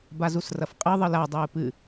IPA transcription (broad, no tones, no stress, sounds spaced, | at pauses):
b a z u s r ɐ f qʼ ɨ ðˤ ɨ l a dˤ ɨː p ɨ